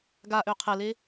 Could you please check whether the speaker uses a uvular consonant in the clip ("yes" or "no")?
yes